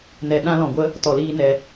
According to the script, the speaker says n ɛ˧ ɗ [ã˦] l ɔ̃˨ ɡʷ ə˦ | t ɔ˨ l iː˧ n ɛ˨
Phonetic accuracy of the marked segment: correct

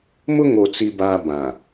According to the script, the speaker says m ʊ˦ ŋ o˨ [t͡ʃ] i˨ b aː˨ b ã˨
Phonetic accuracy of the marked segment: incorrect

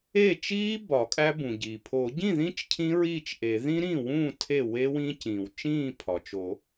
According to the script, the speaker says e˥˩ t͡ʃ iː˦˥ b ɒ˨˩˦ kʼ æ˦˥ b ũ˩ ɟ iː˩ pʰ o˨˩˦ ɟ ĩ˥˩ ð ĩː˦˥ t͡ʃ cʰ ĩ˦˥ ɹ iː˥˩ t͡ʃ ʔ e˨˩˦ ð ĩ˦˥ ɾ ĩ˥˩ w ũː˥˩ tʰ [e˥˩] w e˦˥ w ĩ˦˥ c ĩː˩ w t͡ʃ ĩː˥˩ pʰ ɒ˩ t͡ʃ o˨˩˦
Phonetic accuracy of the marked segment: correct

